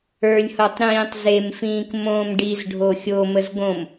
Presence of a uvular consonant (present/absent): absent